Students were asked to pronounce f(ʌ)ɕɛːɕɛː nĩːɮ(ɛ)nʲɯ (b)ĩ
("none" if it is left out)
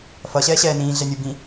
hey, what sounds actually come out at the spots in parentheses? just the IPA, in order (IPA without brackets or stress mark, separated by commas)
ʌ, ɛ, b